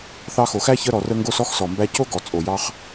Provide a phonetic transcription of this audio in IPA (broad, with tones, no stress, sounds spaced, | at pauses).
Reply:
θ ɑ˧ x o˩ x æ˥ ç ə˧ ɾ ɔ˩ r ə˧ ŋ ɡ o˧ s ɔ˥ x s ɔ˩ m b æ˧ c o˥ ɡ ɔ˩ t͡sʼ o˩ j ɑ˧ χ